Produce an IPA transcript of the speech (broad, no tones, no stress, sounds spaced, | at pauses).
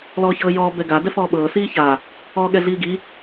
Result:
l ɔː ç ɤː j ɔː b ɛ ɡ a d ɛ f ɔː ɓ ɤː s iː ç a | ɔː ɠ ɛ ɮ iː ɡ i